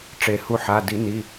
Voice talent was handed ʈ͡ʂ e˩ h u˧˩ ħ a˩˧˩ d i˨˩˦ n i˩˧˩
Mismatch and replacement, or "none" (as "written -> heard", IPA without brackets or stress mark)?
none